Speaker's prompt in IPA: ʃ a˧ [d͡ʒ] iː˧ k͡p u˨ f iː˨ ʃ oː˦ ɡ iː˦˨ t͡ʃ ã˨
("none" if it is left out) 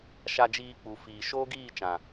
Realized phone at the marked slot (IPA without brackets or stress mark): d͡ʒ